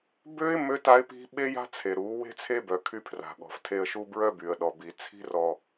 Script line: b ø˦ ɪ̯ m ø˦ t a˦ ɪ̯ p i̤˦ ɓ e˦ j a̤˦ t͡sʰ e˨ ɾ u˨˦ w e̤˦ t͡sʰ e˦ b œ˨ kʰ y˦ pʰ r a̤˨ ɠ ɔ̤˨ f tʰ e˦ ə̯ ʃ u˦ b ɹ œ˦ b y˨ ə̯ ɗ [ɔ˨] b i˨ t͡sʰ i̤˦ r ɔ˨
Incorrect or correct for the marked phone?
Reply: correct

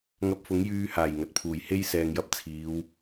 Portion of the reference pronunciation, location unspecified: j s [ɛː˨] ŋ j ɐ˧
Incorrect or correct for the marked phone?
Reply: correct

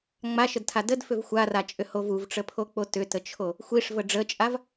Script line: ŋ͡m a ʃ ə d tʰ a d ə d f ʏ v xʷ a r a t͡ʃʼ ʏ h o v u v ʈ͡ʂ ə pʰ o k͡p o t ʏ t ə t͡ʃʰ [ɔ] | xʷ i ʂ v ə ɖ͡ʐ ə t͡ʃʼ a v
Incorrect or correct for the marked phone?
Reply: incorrect: o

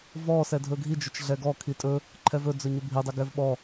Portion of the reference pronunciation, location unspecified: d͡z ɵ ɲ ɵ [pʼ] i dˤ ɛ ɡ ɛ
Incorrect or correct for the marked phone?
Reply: incorrect: bʱ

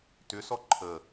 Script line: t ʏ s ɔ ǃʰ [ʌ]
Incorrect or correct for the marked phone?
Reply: incorrect: ə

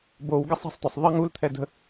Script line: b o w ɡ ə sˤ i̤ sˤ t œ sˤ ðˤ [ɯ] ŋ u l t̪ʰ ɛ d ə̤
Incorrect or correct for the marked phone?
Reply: incorrect: ə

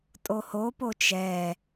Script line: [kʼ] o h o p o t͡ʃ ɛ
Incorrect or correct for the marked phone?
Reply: incorrect: tʼ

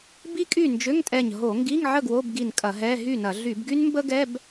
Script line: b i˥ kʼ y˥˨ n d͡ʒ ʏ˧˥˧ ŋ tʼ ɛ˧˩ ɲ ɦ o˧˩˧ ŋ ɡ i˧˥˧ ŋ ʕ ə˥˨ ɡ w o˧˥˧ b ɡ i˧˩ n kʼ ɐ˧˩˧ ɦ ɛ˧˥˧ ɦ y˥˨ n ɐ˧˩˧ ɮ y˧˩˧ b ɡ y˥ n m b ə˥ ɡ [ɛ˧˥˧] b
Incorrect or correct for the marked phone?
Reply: correct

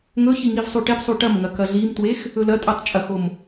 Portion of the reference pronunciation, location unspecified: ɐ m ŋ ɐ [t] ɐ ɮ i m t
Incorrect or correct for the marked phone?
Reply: incorrect: k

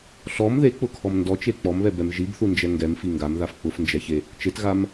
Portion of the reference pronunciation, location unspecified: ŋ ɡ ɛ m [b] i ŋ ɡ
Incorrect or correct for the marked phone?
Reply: incorrect: f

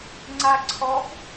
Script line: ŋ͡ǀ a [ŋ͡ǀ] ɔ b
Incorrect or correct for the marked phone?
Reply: incorrect: ǀʰ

